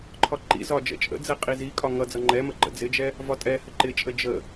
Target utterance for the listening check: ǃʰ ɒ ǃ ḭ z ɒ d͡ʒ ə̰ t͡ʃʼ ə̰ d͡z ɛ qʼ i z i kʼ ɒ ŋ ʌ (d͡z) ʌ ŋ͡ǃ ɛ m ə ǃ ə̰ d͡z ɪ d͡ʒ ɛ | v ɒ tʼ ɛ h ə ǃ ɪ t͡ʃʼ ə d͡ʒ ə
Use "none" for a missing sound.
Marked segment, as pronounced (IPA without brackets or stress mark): d͡z